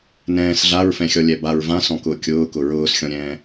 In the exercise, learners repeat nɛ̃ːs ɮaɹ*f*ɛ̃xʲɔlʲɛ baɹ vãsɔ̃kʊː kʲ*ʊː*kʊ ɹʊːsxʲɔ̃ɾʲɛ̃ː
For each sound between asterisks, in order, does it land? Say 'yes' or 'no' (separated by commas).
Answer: yes, yes